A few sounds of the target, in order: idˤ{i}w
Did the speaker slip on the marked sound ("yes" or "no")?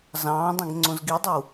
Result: no